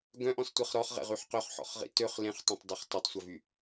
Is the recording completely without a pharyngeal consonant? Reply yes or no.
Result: no